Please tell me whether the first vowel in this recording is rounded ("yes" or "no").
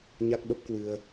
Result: no